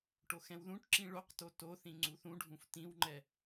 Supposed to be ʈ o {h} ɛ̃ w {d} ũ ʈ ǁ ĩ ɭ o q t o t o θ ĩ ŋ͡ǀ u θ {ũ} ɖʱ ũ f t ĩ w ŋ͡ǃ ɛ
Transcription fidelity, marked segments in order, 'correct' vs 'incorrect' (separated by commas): incorrect, incorrect, correct